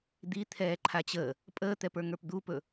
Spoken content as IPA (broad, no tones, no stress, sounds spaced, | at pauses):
d̪ i t̪ʰ ɛː ǃʰ a t͡ɕ əː | pʼ əː t̪ ɛ p ə˞ ŋ ə˞ p d̪ u p ɵ